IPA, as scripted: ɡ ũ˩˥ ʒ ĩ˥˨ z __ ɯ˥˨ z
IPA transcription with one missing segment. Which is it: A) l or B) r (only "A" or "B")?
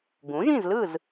A